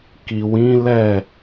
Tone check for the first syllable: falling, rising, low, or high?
low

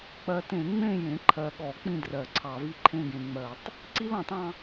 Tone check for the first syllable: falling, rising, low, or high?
low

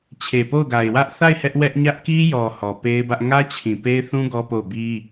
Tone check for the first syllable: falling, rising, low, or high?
low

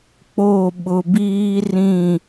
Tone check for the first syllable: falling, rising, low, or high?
falling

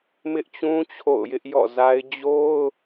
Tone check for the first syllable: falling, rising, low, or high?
high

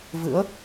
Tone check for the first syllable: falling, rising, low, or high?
rising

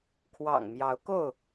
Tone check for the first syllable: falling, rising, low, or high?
low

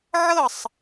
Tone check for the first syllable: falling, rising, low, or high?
falling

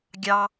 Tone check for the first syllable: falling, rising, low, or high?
low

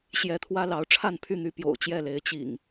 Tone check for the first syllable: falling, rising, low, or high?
rising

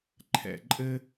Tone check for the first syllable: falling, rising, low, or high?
low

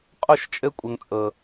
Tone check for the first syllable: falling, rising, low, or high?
falling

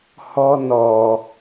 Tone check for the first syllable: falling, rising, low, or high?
high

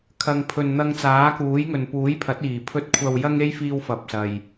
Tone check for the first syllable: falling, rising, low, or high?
low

